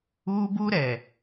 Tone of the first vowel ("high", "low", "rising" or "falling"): high